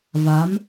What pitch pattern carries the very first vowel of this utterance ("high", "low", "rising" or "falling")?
rising